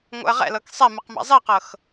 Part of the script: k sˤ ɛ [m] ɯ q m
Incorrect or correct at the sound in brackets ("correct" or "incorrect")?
correct